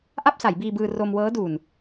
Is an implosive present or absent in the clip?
absent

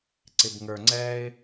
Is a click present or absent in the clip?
present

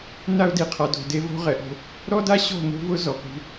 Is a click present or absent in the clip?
absent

